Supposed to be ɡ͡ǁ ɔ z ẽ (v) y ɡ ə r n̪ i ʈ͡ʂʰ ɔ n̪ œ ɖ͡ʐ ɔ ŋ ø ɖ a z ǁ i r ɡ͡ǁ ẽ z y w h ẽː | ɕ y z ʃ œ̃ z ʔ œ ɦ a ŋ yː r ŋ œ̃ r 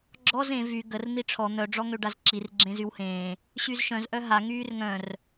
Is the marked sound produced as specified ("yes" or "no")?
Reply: yes